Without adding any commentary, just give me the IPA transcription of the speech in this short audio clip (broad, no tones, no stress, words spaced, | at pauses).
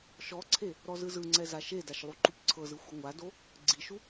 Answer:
ʃɔǀʰe | ɾɔzɯzɯŋ͡ǀɛ zaʃedaʃ lˠuǃupǀʰɤzɯ xʷɯŋʷado | ɡ͡ǀiʃu